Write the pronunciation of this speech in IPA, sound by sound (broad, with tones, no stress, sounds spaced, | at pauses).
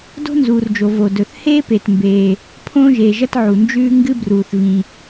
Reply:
d o̤˥ n z uː˩ r d͡ʒ o˩ v o˩ d ɵ˩ θ h eː˥ p e˩ t m b eː˩ | pʰ õː˥ ʒ eː˩ ʒ ɐ˥ t ʕ u˩ n d͡ʒ ʉː˥ ŋ ɡ ɨ˥ b r uː˩ θ v ĩ˩